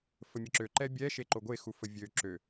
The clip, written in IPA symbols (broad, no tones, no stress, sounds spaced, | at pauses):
f ə mʲ ə ǁ ø ǃ ɛ bʲ ɛ ʃ e ǃ o ɡʷ e x u f ə vʲ ø ǁ ø